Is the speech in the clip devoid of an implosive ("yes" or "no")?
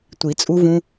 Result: yes